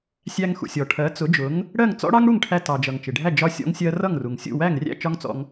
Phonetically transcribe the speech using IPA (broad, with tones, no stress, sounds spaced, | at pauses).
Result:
sʲ æ˧ ŋ x ṵ˩ sʲ ɔ˩ ʈʰ ɜ˩˥ t͡s ʊ˩˥ d͡ʒ ʊ˩˥ ŋ | ɽ ɜ˥˩ ŋ t͡s ɔ̰˥ ɽ ɑ˥ ŋ ɽ u˥˩ ŋ ʈʰ æ˧ t ɑ˩ d͡ʒ ʌ˩ ŋ t͡ʃ ɪ˩ ɖʱ æ˥˩ d͡ʒ ɒ˧ sʲ ɔ̰˧ ŋ sʲ ɜ˧ r ʌ˥˩ ŋ r u˩ ŋ sʲ ṵ˥˩ w æ˥˩ ŋ rʲ æ̰˥˩ t͡ʃ ɒ˥ ŋ t͡s ɔ̰˧ ŋ